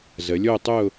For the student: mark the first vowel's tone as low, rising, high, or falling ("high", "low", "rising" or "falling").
rising